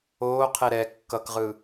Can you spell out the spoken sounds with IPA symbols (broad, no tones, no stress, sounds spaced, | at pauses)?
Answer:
oː qʰ e ɾ ɛ kː ʌ k ʁ ɯ